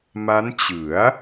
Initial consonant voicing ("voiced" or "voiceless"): voiced